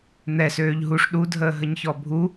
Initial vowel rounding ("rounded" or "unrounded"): unrounded